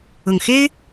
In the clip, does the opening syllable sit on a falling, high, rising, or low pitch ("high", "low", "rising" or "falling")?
low